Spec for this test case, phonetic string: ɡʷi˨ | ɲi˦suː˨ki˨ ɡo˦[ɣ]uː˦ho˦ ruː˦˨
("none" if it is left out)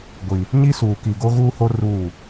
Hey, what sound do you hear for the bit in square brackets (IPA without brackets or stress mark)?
ɣ